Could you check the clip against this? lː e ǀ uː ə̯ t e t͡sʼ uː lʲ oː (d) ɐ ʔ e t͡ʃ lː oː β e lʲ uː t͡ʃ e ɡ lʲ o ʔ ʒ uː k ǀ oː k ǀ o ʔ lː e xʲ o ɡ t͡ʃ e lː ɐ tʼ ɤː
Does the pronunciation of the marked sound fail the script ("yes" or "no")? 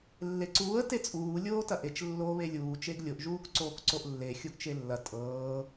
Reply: yes